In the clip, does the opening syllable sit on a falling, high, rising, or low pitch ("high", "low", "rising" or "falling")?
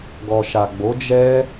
low